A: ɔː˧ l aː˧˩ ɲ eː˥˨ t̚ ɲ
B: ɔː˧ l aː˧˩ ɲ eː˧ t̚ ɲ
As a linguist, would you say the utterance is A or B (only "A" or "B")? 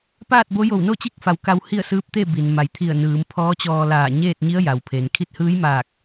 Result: A